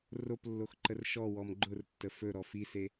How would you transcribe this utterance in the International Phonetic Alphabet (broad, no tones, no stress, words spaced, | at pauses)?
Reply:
roplːoxǃər ʃɔwɔm ɡ͡ǃʊrtːə fɵɾɔ fise